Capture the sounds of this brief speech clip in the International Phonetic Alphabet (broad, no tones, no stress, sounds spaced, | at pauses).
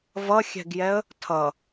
v ʌ xʲ ɛ̤ ɡ j ɛ ə̯ | tʰ ʌ